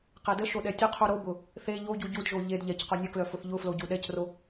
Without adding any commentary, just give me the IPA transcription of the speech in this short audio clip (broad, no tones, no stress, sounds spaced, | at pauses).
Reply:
q e d ə ʃ o ɗ ɛ tʲ ə qʰ u ɾ o b ʊ | θ e ʎ o ɟ u ɟ u d ʒ o ʎ e d ʎ ɛ c q ʊ nʲ ə k l œ f ʊ θ ʎ ʊ f l o ɟ u ɗ ɛ c r o